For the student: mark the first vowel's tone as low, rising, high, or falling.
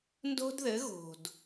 high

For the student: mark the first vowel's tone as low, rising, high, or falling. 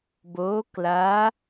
rising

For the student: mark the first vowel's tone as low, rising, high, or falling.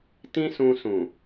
high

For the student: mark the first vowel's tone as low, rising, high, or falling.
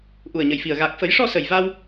low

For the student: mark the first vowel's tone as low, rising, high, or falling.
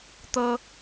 high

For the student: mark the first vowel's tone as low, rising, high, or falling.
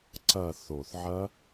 falling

